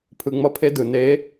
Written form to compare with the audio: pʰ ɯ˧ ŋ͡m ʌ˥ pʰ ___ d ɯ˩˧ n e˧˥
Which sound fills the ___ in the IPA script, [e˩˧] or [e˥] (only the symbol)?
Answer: e˥